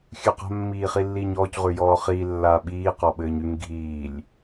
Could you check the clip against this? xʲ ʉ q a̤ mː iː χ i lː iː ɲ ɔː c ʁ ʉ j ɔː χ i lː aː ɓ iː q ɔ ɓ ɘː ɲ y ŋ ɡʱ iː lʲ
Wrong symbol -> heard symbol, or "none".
none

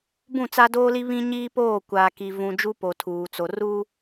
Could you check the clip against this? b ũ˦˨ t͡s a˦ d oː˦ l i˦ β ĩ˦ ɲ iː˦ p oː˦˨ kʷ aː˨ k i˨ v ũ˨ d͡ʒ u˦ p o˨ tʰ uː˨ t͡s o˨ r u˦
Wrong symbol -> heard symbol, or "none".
none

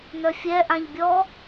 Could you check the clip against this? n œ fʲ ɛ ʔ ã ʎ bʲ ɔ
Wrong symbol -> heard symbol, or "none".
none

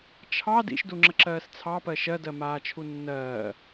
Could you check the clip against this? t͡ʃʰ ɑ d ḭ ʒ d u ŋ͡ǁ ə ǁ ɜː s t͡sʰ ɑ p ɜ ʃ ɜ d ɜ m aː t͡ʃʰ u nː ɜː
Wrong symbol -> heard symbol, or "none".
ʒ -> ʃ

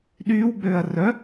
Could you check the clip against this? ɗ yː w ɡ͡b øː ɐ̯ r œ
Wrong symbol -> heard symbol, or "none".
none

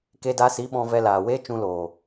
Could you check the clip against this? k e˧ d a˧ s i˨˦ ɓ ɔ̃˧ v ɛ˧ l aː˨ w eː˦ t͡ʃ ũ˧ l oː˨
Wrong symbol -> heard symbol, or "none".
none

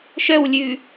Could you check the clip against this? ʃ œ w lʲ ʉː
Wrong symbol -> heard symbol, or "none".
none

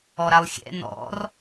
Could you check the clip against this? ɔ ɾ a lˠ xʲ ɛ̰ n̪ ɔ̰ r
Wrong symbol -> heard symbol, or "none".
none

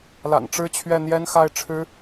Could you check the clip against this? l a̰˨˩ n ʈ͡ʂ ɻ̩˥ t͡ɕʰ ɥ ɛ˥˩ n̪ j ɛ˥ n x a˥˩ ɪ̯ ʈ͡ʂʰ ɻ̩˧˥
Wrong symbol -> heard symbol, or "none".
none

